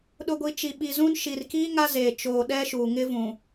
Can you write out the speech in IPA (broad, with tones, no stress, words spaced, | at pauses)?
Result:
ɗʊ˨ɡʷi˨ t͡ʃi˨ɓi˨zũ˦n ʃi˨rkiː˦ ŋa˦zeː˨t͡ʃoː˨ ɗɛ˦ʃuː˨ŋɪ˦vũ˨